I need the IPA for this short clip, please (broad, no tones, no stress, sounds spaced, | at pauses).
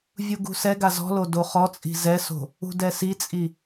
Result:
vʲ u ɡ ṳ s ɛ ɡ a z ɔ̤ l o d o χ ɔ t͡sʼ i̤ z ɛ s o̤ | ṳ d ɛ s i t͡sʼ i